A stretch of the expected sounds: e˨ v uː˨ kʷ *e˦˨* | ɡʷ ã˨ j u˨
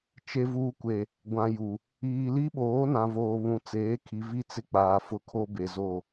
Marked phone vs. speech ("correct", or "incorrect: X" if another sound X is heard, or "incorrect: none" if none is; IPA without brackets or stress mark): incorrect: e˨